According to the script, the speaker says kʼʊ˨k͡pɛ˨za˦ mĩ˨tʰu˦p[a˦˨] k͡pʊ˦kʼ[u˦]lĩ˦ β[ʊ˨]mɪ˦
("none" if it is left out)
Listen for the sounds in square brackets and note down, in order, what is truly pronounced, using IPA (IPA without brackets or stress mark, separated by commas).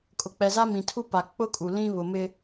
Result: a˨, u˨, ʊ˨